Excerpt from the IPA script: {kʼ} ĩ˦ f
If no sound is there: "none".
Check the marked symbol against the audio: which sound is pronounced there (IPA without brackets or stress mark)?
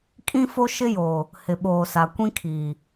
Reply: kʼ